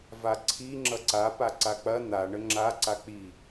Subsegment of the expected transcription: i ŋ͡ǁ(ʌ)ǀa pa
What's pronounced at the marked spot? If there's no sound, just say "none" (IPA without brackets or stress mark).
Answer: ʌ